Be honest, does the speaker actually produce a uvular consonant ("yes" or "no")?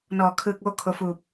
no